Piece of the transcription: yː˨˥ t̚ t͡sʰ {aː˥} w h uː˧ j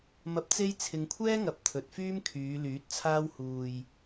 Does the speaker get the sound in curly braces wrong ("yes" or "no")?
no